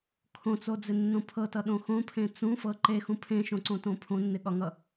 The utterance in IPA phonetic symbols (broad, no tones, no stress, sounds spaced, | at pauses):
kʰ õ t͡s o d͡z ɪ nː õ pʰ ɤ t ʌ ɗ õ x õ pʰ ẽ t͡s ũ f ɤ ǃ e x ũ pʰ ẽ ʃ õ ǀ õ t õ pʰ õ nː ɪ ɠ ɒ ŋ ʌ